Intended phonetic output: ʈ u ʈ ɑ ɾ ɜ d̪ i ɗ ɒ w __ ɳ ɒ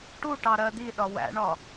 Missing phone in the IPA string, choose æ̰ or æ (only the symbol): æ̰